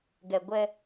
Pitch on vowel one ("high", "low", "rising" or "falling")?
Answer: low